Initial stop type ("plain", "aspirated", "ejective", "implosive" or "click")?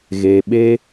implosive